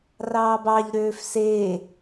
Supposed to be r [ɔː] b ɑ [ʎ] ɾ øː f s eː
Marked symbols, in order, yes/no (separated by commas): no, yes